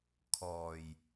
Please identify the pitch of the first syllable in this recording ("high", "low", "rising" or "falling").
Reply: low